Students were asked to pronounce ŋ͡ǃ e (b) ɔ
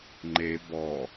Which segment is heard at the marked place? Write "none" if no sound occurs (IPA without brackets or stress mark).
b